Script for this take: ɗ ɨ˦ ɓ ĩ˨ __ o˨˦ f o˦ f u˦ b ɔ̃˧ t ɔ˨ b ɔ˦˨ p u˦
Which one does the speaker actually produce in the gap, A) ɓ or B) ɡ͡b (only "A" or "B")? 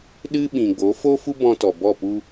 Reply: B